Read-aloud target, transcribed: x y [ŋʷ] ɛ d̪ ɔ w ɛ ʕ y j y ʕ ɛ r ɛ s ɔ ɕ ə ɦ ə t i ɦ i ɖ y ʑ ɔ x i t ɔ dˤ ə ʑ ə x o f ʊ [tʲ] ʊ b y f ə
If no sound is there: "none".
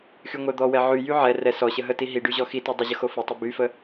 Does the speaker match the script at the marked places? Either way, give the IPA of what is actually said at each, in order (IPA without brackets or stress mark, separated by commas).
ŋʷ, tˤ